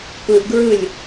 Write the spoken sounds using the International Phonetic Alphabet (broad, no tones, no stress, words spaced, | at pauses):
pɯʔɡɹɯlʲ